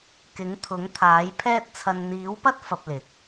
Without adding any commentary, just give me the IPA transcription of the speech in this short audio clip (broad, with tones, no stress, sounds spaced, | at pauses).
k ɪ˨˥ ŋ t̪ʰ ʊ˨˥ ŋ t̪ʰ aː˨˥ j pʰ ɛː˥ t̚ t͡sʰ ɐ˧ n n̪ iː˨˥ w p ɐ˥ t̚ f ɐ˧ p̚ l ɪ˨˥ k̚